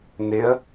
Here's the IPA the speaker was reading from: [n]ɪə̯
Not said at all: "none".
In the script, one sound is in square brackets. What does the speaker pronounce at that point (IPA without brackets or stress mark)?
n